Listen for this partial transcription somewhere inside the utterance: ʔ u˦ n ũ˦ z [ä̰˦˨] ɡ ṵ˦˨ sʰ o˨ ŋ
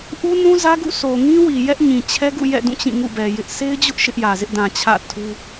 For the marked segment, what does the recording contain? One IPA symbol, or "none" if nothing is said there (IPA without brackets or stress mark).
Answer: ä˦